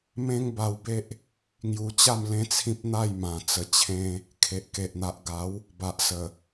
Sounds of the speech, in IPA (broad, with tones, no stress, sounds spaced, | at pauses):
m ẽ˦ ŋ b a˧ w b e˦ ʔ | ŋ j u˧ t͡ɕ a˥˧ m l ẽ˦ t͡sʰ ĩ˦ p̚ n̪ a˥˧ j m ã˨˩ t͡s ə˨˩ t͡ɕʰ ẽ˧ | kʰ e˨ ʔ k e˨ ʔ n̪ a˨ ʔ ɡ a˨˦ w | b a˨ ʔ s ə˨˩